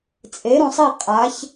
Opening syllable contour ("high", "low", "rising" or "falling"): rising